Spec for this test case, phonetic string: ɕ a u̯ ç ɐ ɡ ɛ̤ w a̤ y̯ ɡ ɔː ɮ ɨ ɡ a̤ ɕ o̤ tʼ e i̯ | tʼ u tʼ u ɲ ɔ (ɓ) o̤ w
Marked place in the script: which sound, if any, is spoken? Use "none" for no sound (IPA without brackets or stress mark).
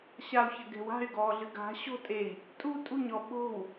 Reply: ɓ